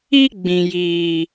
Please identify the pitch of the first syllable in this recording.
high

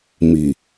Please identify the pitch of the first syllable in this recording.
low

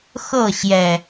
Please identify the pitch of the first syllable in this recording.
falling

